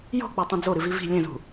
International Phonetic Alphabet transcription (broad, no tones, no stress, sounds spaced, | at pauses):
j ɔ̤ k͡p e tˤ ĩ d͡z o ɾ ɨ v i v i̤ lʲ ɛ̃ z ṳ